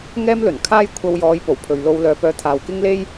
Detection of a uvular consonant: absent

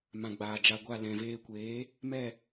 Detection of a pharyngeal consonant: absent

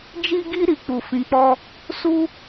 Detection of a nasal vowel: present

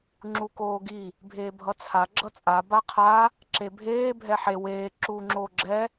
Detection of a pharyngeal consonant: present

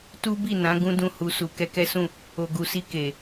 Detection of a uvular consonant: absent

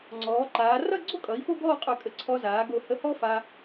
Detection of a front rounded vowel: present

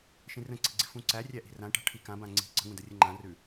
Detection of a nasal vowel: present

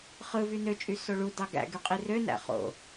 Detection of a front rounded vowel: present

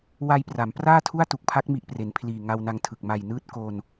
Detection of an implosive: absent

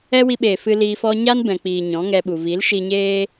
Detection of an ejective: absent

